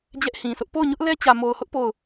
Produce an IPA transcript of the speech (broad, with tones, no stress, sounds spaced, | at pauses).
d͡ʑ ɛ˦ ʔ h ĩ˨ s ʊ˦ ʔ p o˦˨ ʊ̯ ɲ ʊ˦ ʔ l ɛ˦ t͡ɕ ä˨ m o˨ ʊ̯ h ʊ˦ ʔ p o˦˨ ʊ̯